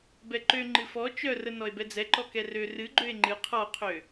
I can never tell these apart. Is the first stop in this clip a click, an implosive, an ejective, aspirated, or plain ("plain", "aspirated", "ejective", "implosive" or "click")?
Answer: plain